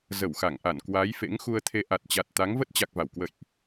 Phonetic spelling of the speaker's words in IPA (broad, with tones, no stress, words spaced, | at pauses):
zə˧˩wxa˧˩ŋʔa˧˩n kwa˨˦j fḛ˧˥ŋxu˧ə̯t̪ʰe˧ ʔa˨˩t̚t͡ɕa˨˩t̚t̪a˨˦ŋ və˦˥t̚t͡ɕa˨˩k̚va˧˩w kwə̰˧˨jʔ